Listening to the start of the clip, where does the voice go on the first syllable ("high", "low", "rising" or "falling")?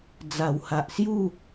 low